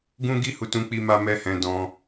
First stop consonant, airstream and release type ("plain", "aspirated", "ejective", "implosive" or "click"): plain